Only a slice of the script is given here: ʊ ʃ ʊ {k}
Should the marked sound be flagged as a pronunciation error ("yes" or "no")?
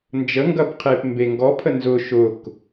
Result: no